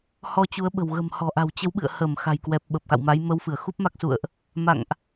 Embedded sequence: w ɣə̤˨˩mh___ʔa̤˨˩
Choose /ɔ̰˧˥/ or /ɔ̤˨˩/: ɔ̤˨˩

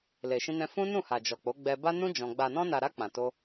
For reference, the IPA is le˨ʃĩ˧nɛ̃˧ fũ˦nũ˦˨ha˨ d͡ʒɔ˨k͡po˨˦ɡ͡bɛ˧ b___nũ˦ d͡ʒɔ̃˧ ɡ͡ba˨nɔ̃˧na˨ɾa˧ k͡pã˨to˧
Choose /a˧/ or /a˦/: a˦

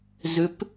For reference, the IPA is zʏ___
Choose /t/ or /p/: p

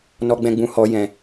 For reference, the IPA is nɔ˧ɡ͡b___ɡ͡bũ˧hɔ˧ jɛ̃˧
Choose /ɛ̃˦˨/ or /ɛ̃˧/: ɛ̃˧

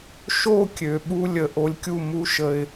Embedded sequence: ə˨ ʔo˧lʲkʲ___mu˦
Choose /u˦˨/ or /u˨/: u˦˨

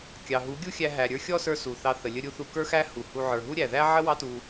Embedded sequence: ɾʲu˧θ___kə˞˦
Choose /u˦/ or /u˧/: u˧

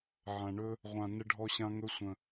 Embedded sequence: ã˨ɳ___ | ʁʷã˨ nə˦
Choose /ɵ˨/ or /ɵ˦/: ɵ˦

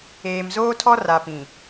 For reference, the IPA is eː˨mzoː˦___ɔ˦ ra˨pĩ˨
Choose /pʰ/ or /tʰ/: tʰ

